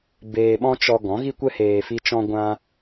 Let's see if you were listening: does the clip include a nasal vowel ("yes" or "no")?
yes